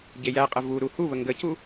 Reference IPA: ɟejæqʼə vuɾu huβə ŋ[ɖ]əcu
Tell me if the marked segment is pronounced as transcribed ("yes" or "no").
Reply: no